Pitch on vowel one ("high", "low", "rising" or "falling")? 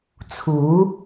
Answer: rising